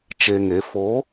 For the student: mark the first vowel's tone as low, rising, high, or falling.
low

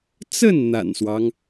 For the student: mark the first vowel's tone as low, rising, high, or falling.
falling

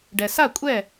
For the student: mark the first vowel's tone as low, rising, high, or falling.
low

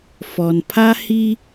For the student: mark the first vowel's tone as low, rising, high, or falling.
low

